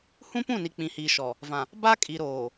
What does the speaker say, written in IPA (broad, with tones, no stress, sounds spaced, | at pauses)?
h ũ˦ p ũ˦˨ n i˨ k͡p ĩ˨ h iː˨ ʃ ɔ˨ | v ã˨ | b a˦ kʼ i˨ ɾ oː˨